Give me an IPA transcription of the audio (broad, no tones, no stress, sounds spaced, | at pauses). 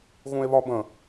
ɣ ũ e̯ β ɒ b ə̃